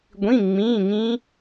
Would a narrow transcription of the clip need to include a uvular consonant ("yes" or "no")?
no